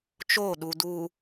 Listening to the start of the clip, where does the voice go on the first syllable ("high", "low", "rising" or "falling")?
falling